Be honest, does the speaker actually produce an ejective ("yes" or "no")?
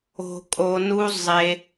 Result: yes